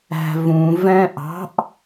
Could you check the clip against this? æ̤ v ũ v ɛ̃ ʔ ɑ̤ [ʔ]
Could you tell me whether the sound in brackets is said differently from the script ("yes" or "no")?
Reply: no